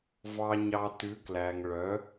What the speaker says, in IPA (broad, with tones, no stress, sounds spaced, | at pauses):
v ɑ˨ ɲ ɑ˨ t ʉ˨˥ k l æ˨ ŋ ɭ œ˨˥